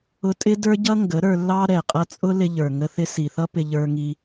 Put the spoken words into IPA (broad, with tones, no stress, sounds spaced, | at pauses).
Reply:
ʊ˧ tʼ ɪ˦ d ə˞˦ ɟ ʌ˦ ŋ ɡ ə˨˦ ɾ ə˞˧ lː ɑ˦ ɾ ɛ˨ qʼ ʌ˧ t͡sʼ ʊ˦ l ɪ˧ ʎ ə˞˨ ŋ ə˧ θ ɪ˧ s i˨ θ ʌ˦ p ɪ˧ ʎ ə˞˧ ŋ i˧